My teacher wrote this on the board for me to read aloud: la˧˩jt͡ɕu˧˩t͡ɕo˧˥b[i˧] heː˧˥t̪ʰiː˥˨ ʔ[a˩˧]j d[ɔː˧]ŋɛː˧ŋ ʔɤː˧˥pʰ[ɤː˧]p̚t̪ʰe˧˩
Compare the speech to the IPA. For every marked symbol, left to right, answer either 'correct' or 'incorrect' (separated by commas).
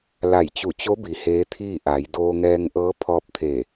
incorrect, correct, incorrect, incorrect